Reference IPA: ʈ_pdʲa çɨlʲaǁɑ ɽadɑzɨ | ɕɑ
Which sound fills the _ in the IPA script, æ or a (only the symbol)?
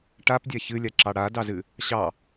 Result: a